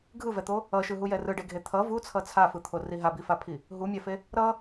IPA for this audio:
ɡʱ ɯ v ɛ t̪ o | ʌ ʃ ɯ ɦ u j ɛ r ɯ ɖ e ɡʱ e t̪ʰ ʌ v u t͡sʰ ʌ t͡sʰ a f ɯ t̪ʰ o r i ɦ a b i f a pʰ i | ɦ u mʲ a f e | ɾ ʌ

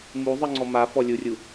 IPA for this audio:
m u zˤ ɯ ŋ͡ǀ ɔ m a f ɔ lʲ u rʲ u

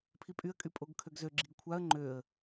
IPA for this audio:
pʰ i pʼ y ə̯ kʼ y pʼ o ɡ kʰ ø ɡ z ø ɡ͡ǁ i ɡ kʷʰ a ə̯ ŋ͡ǃ ø ə̯

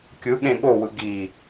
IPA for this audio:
kʲ ɯ ɠ ẽ ɠ o w ɯ ɡ i

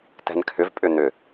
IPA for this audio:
t ɛ̤ n kʰ ʏ v pʼ ʏ n ʏ

